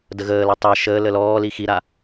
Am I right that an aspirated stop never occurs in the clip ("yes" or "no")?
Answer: yes